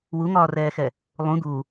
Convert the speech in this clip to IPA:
w u ŋ ɒː r ɛː x ɛ | lˠ ũ d̪ u

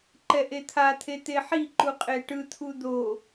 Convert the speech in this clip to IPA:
ǃ ɛ ʔ e t̪ʰ a t̪ʰ e t̪ e ħ i ǃ u qʼ e ʈ ɯ t̪ʰ u d̪ o

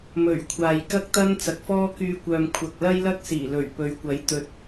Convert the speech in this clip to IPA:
m ɵ˨˩ ɥ kʷʰ aː˨ j k ɐ˥ k̚ t̪ ɐ˥ n t͡s ɐ˨˥ k̚ f ɔː˥ k yː˧ kʷ œː˨ m kʷʰ ɐ˨ k̚ l ɐ˥ j l ɐ˥ k̚ s iː˨˩ l ɵ˨˩ ɥ p ɵ˨˧ ɥ kʷ ɐ˨˥ j t̪ ɵ˨ t̚

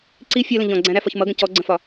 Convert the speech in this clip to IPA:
ǀ i fʲ ɜ l ə̃ ʎ ɔ̃ ɡ͡ǀ æ̃ ɾ æ f ɒ ç m ʌ ɡ ə̃ c ɔ ɡ͡ǀ ə̃ f ɒ

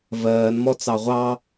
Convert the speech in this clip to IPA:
v ɜː n m ɔ t͡s ɑ ʁʷ ɑ

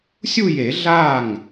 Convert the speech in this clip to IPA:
sʲ u˥˧ j e˨˩˦ ɮ a˥˩ ŋ

